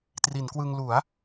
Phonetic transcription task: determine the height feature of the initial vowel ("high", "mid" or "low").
high